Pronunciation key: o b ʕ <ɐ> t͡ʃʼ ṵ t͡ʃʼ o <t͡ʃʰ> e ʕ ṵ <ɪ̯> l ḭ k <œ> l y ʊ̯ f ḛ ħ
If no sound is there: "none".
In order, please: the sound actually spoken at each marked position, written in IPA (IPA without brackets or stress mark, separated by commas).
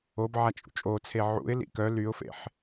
a, t͡sʰ, ɪ̯, œ